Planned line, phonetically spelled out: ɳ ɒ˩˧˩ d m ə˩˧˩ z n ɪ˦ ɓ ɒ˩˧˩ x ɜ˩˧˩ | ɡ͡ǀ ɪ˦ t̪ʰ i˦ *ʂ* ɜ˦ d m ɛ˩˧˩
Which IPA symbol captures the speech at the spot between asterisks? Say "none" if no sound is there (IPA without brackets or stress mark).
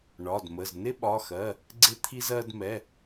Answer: z